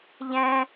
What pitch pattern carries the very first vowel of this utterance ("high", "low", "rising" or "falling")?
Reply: low